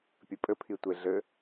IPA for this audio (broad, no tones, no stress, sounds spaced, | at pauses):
pʲ ɘ pʼ ɘ pʰ i tʷ e ɮ ɘ